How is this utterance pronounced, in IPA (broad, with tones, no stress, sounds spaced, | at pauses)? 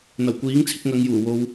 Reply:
n̪ ɐ˨˩ w kʷ iː˨˥ ŋ t͡sʰ ɪ˧ k̚ ŋ ɐ˨˧ ŋ j uː˨˩ w o˨ w